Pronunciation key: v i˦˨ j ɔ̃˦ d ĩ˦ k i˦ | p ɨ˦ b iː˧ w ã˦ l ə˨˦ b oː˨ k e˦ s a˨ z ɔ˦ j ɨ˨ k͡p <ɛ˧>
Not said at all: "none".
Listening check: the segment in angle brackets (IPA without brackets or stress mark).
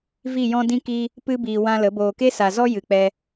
ɛ˧